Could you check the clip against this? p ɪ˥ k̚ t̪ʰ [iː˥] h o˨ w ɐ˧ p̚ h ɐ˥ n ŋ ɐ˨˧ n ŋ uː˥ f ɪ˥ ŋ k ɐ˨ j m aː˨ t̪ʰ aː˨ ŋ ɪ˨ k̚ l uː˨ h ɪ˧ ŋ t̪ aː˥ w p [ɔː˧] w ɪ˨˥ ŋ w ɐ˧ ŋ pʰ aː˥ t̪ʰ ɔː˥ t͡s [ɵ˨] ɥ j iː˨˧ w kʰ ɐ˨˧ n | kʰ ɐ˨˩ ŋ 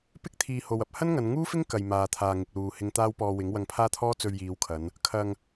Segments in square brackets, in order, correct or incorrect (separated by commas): incorrect, correct, incorrect